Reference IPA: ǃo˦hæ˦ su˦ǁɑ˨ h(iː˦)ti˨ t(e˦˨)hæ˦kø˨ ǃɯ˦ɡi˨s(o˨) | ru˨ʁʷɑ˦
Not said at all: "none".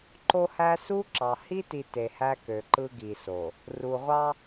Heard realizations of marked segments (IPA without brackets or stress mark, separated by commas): i˦, e˨, o˨